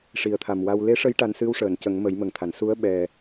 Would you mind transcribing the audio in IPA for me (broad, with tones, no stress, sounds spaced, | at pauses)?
ʂ i˨˩ ə̯ t̪ʰ a˨˩ m w a˧ w l e˧˥ ʂ ə˧˥ j ʈ a˧ n s ɨ˧˥ w ʂ əː˨˩˨ n c ə˨˩˦ ŋ m ə˨˩˦ j m ə˨˩ ŋ t̪ʰ a˨˩˨ n s u˧˥ ə̯ ɓ ɛ˨˩